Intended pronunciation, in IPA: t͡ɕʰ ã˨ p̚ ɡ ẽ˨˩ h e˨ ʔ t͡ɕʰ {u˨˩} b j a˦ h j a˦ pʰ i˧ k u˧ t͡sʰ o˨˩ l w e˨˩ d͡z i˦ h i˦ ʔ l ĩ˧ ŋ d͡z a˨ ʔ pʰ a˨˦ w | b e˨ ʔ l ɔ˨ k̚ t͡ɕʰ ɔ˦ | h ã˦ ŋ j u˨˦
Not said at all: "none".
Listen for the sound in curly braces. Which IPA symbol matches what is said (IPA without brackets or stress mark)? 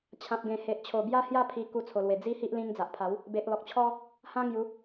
o˨˩